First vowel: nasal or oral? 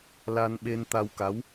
oral